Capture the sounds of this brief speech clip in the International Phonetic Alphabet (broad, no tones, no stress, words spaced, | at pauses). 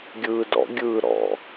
ɡʲɯːdɔ̰ ɡʲɯːɾɔ̰